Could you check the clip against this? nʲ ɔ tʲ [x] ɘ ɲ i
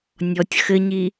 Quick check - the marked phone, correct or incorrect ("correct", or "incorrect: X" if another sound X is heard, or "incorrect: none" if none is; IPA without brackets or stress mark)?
correct